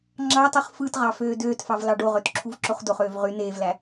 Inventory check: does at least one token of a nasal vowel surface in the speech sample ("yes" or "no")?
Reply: no